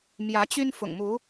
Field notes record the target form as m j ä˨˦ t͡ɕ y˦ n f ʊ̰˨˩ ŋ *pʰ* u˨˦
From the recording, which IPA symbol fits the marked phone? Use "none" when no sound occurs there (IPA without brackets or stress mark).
m